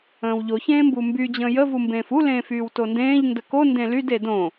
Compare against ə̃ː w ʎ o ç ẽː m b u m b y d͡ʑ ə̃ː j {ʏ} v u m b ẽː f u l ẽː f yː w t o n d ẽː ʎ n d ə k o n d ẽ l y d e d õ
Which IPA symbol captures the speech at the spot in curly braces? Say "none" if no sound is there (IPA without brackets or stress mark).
ə